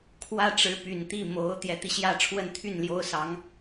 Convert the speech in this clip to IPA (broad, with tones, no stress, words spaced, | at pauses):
kʰwä˥ ʈ͡ʂɻ̩˧˥py˨˩nt̪i˥˩ mo˧˥ʊ̯ t̪jɛ˧˥t̪i˧ɕjä˥˧ʈ͡ʂʰwə˥˧n t̪ʰy˥˩nljo˥ʊ̯ sɑ˧˥ŋ